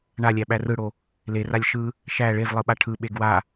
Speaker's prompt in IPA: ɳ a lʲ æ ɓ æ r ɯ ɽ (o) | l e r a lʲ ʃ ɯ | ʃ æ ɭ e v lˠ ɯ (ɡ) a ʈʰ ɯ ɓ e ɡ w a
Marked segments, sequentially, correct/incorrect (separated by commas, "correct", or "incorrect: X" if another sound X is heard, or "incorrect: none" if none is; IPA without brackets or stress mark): correct, incorrect: ɓ